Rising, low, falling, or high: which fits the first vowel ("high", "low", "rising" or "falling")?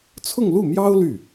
falling